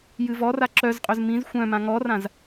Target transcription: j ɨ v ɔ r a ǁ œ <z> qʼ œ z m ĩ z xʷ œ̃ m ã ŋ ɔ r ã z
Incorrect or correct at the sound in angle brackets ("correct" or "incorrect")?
correct